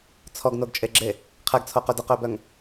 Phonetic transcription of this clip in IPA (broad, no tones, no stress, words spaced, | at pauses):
t͡sʰɔɡnoɡt͡ʃʼeɡ͡ǁe | qʰɛɡt͡sʰoqø dəqøbœŋ